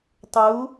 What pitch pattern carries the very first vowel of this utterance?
rising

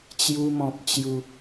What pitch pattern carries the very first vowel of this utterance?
high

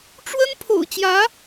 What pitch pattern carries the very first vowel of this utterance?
high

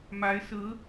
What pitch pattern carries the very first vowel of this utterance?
rising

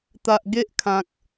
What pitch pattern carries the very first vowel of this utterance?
low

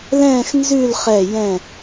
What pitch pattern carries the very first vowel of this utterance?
falling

